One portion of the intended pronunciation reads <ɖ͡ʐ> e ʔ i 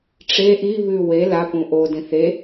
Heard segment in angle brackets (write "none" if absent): ʈ͡ʂ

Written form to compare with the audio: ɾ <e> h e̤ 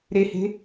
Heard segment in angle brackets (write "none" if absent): e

